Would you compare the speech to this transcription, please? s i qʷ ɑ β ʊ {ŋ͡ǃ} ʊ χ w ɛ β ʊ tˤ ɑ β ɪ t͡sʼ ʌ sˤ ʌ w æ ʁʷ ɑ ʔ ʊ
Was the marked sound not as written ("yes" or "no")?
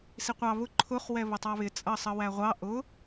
yes